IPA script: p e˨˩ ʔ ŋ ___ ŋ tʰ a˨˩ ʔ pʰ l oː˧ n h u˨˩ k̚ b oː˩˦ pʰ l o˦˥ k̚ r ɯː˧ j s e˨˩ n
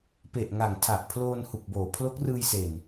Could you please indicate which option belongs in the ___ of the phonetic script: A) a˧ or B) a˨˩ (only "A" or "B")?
B